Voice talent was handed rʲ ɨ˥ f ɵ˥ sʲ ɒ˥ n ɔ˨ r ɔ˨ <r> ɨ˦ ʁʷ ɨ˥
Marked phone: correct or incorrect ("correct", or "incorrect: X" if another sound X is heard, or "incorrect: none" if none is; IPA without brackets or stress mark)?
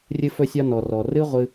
correct